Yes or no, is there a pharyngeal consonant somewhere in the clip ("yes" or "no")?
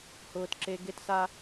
no